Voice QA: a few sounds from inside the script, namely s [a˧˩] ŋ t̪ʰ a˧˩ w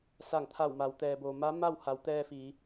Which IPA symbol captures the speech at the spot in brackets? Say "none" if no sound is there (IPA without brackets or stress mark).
a˧˩